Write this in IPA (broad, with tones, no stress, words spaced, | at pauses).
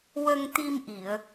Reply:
wə˧ŋt̪i˧mʔi˨˩˨ə̯